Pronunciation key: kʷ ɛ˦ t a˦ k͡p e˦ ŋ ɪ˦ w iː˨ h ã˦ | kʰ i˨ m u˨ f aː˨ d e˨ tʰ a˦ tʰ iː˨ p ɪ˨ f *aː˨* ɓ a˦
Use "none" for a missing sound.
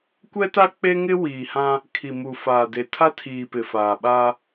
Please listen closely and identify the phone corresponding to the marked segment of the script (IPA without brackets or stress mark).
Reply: aː˨